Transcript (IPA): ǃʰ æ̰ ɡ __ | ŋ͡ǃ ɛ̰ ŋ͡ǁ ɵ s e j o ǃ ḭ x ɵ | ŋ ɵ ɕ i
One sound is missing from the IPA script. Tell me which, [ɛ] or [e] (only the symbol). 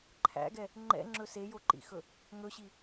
ɛ